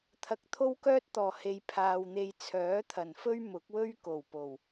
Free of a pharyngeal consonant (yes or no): yes